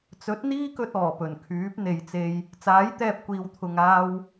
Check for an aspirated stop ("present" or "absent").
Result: present